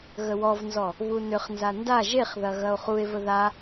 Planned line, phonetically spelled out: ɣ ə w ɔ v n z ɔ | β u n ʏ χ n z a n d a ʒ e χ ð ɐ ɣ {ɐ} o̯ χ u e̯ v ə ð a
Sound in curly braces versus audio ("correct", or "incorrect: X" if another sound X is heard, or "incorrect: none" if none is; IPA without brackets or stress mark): correct